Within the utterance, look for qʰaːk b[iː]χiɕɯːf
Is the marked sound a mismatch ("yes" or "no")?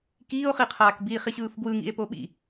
no